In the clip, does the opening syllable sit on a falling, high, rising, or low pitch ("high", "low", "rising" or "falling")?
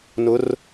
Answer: rising